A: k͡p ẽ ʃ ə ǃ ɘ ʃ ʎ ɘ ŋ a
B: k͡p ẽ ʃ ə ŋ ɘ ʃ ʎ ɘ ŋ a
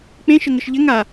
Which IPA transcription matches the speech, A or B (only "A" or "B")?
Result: B